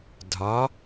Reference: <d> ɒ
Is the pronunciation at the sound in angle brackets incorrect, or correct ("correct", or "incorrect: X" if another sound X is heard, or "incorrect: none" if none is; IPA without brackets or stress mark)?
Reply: incorrect: dʱ